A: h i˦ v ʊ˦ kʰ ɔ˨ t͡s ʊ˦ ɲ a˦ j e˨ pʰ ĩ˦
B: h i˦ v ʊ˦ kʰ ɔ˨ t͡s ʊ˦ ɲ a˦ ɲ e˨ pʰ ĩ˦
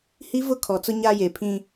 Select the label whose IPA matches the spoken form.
A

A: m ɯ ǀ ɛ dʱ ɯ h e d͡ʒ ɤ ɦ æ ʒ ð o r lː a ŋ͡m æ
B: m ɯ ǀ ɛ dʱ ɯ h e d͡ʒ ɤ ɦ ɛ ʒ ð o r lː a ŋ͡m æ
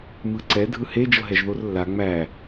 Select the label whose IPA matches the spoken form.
B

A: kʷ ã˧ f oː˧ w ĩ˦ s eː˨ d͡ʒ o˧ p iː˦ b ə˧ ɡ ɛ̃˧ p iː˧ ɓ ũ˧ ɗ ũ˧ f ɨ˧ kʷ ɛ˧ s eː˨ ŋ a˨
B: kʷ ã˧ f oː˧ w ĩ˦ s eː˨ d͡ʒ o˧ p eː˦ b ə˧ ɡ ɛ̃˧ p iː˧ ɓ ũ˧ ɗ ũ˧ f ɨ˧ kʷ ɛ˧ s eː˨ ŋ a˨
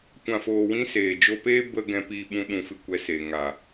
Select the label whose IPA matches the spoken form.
B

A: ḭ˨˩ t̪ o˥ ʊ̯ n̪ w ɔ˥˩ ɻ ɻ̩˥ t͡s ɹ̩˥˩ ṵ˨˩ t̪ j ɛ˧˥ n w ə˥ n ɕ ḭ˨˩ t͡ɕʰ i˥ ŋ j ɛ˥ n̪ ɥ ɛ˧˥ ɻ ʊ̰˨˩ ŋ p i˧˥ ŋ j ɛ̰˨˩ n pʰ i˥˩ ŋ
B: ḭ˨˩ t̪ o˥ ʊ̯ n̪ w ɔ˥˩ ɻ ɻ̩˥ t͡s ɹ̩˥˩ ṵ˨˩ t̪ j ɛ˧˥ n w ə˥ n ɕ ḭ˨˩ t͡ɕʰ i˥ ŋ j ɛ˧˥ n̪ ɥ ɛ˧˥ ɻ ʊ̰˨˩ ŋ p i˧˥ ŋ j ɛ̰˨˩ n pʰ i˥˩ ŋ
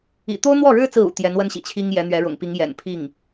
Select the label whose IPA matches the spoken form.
B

